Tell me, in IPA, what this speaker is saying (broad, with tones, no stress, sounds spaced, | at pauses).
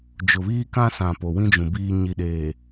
d͡ʒ ʊ˨ β iː˦ k ã˦ s ã˨ p o˨ w ĩ˦ d͡ʒ ũ˨ b iː˨ ɲ i˨ ɗ eː˨